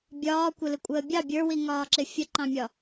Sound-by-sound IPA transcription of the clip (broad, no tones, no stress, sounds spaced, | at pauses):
bʲ ɒː kʷ ə l ɪ kʷʼ əː bʲ ɑ bʲ ə˞ w i ŋ ɒː ǁ ɪ fʲ ə ǃ ɑ̃ mʲ ɒ